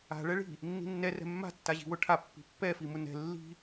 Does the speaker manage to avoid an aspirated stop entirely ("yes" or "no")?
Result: no